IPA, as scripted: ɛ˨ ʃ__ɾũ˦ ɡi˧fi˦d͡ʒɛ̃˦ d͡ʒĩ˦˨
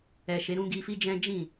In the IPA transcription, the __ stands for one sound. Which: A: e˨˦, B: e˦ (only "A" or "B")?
A